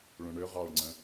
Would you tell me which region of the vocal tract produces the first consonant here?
retroflex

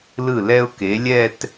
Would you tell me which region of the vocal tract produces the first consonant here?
tongue tip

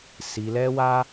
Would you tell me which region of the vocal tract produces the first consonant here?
tongue tip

